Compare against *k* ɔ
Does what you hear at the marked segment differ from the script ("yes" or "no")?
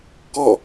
no